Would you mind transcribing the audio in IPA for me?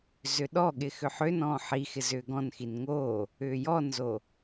z ʏ ɗ ɔ ɠ ɪ x ʏ ħ ʏ n ɔ̃ː ħ i x ɪ z ʏː ɡ ɔ̃ n x i n ŋ o | ʏː j ɔ n z o

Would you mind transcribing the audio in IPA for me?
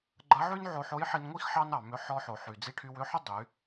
ɡ͡ǃ ɐ˧˥ ʕ y˥ n ʕ o˧ ħ o˧˥ j ħ i˧ n ŋʷ i˥ x ħ ɑ˥ n ɑ˩ m ʏ˧ ħ ɔ˧ ħ o˩ ħ y˩ d͡z i˧ ʈʰ y˧ w ʏ˧˥ ħ ʏ˥ dˤ y˩˧

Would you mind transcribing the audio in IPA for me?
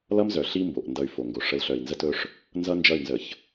l ʌ˦ m z œ˨ ɬ i˦ m b o˨ ʔ n d ʌ˨ y̯ f o˨ ŋ ɡ o˨ ʂ ə˨˦ l ɬ œ˨ i̯ n z ə˦ t ɵ˦ ʂ | n z ʌ˦ n d͡ʒ ʌ˦˨ y̯ n z ə˨ ç

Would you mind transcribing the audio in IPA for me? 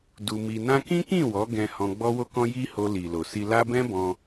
d u˧ m i˧ n ã˦ k ĩ˦ k ĩ˦˨ w ɔ˨˦ ɡ ɛ̃˧ h ɔ̃˧ ɡ͡b ɔ˦ w o˦ k ɔ̃˦ j i˦ h o˧ l i˨ l o˨ s i˧ l a˦ b ɛ̃˦ b ɔ̃˧

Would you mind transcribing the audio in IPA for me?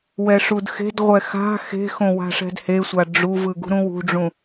w ɛ ʂ u d x e̤ d ʁʷ ɛ x a̤ x e̤ x õ w a̤ ʂ ɛ̤ d h e sʷ a ɖ͡ʐ u v ɯ ɡ ṳ ɾ ũ w ṳ ɖ͡ʐ ũ

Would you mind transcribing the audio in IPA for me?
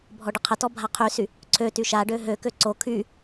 bʱ ɔ ɖ ə qʰ ə t ɔ bʱ a qʰ y s y | ǀʰ ø t y ʃ a ɖ ø ɦ ø k ø ǀ o kʰ y

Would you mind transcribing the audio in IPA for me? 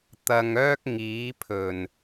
t̪ ɐ˧ ŋ œː˥ k̚ ŋ iː˨˥ pʰ ɵ˨˩ n

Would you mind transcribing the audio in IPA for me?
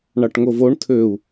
ɳ ɑ ʈ ŋ o v o ɳ tʰ ø u̯

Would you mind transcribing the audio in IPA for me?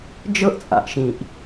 d͡ʒ ɤ˥ ʔ t͡sʼ a̰˩ ʔ ʃ ĩ˩ ʔ

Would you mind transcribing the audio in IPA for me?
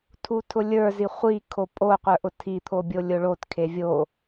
tʰ u tʰ ʊ lʲ ə˞ z i χʷ i kʰ o pʼ o qʷ ə˞ ʔ ʊ tʰ i t̪ʰ o bʲ o lʲ ʊ ɭ o t kʰ e vʲ o

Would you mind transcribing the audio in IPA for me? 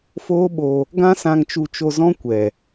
f oː˦ ɓ o˧ | ɡ ã˦ s ã˧ ŋ t͡ʃ u˧ t͡ʃ o˧ z ɔ̃˦ kʷ ɛ˨

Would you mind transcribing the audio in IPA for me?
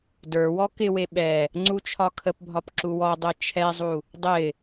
d ə˞ w ɔ k ɪ w e ɓ ɛ | ŋ͡ǀ u t͡ʃʰ ɒ kʰ ə p bʱ ɒ p ǁ u w ɔ dˤ ɛ t͡ʃʰ ɛ zˤ u | dˤ ɪ

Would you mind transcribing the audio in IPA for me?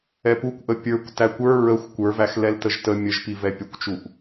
ɛ p u kʷ ʔ ə pʲ ə˞ kʷ t æ kʷ ə˞ ɹ ə xʷ kʷ ə˞ v æ x l ɛ l t ə ʒ t ə mʲ ə ʒ p i v ɛ pʲ ə kʷ t͡ʃ u ʔ

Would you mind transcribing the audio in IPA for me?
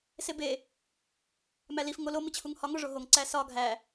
s e b e | m æ l i f ŋ o l o m i t͡ɕʰ u ŋ h ɒ ŋ o ʐ o ɦ o ŋ ǀ æ s ɒ ɡʱ æ

